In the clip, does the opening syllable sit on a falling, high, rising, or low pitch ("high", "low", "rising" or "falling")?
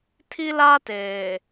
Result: high